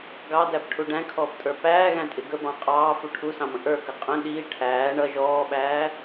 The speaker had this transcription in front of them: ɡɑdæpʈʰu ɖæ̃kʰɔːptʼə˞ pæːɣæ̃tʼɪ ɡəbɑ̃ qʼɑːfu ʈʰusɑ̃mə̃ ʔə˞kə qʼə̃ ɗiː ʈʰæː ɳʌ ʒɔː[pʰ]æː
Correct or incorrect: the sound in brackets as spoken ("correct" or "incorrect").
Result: incorrect